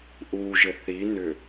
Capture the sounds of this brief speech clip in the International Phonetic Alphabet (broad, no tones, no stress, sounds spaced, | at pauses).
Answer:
ʔ u ʒ ɘ θ i n ʏ